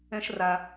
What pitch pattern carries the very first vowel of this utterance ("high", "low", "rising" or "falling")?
high